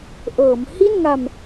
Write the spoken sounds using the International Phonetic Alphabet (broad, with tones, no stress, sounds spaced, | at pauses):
ʔ ɤː˩˦ m h i˥˩ n ŋ a˧ m